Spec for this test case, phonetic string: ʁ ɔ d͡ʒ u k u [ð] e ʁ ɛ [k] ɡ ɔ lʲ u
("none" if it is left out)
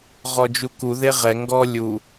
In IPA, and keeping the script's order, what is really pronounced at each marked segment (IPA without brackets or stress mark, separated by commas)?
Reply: ð, ŋ